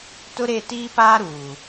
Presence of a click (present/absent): absent